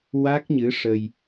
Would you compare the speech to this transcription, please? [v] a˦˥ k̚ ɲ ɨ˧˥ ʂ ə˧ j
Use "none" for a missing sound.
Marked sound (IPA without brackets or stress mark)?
w